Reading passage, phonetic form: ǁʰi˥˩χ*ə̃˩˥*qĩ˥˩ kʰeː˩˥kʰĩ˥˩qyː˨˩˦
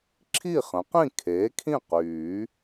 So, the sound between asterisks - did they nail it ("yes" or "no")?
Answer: yes